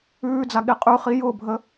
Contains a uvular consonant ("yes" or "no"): yes